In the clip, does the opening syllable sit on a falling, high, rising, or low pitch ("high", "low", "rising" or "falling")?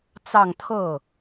falling